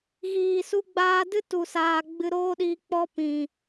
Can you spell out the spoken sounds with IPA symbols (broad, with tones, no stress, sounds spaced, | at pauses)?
ɣ iː˨ s u˧ ɡ͡b aː˧ d ɨ˦ t u˨ s aː˨ ɡ͡b ɨ˧ ɾ oː˦ ɗ iː˧ k͡p ɔ˧ p ĩ˨